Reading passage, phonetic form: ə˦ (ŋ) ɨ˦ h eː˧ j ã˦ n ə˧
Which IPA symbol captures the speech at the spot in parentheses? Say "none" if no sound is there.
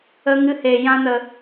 ŋ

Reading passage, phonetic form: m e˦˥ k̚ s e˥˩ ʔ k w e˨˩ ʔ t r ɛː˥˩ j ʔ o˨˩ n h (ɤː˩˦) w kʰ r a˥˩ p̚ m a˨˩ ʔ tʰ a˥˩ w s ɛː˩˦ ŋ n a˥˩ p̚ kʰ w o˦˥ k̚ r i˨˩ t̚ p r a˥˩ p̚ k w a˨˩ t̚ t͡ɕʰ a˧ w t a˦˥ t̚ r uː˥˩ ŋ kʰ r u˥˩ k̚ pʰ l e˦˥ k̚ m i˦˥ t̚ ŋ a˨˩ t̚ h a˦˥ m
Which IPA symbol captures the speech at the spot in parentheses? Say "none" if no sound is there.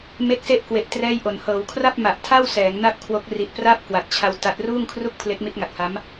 ɤː˩˦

